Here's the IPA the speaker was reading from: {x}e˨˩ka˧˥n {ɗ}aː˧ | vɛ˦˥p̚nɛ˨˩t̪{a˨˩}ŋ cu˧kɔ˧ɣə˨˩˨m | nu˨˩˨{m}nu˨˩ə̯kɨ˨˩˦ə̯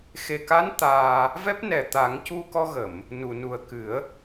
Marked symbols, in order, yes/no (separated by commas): yes, no, no, no